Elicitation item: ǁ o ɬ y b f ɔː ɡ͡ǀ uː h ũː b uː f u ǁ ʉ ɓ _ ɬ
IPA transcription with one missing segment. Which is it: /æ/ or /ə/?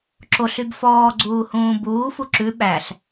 æ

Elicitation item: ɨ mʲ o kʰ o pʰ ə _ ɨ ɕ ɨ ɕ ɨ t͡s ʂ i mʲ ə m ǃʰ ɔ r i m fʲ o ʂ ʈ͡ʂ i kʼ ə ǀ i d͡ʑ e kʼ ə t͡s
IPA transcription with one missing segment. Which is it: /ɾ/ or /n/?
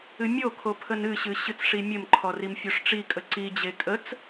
n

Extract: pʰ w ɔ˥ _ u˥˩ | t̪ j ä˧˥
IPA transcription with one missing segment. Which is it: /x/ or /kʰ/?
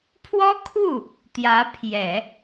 kʰ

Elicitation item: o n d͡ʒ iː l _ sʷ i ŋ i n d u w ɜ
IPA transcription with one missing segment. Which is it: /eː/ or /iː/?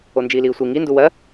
iː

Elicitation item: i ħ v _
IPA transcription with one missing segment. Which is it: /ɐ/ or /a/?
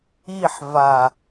a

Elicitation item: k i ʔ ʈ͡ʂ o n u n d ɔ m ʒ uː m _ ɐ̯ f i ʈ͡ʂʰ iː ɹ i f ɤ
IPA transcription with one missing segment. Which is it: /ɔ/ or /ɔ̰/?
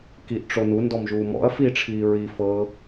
ɔ̰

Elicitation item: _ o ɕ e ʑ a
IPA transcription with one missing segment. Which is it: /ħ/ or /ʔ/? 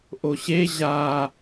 ʔ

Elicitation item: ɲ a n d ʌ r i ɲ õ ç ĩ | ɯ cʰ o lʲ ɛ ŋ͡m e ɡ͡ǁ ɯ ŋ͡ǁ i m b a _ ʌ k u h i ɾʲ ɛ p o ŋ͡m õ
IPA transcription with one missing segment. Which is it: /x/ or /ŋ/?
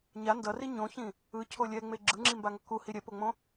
ŋ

